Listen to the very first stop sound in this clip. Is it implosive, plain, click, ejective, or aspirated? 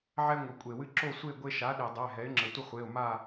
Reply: ejective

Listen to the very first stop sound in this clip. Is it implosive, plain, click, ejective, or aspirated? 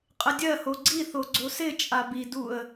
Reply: ejective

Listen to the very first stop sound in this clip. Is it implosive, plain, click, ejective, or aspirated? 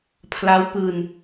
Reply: aspirated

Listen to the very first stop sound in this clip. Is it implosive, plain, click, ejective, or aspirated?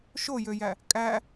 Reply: ejective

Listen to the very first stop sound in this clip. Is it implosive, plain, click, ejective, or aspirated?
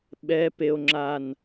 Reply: implosive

